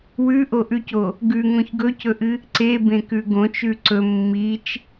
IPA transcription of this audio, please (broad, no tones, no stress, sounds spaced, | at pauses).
w ʉ ʔ o ʔ ʉ c o | ɡ ʉ ŋ õ ç ɡ ɵ c ɵ ʔ ɨ | ǀ e b ẽ k ʉ ɡ õ t͡ʃ ʉ ǀ ɵ mː i t͡ʃ